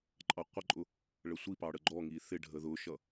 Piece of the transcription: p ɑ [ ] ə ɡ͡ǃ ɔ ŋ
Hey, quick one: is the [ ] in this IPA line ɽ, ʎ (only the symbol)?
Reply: ɽ